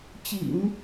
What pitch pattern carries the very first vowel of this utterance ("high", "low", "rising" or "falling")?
low